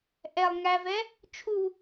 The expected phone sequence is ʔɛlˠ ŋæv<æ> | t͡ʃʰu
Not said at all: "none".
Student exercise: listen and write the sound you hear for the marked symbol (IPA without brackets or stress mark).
ɛ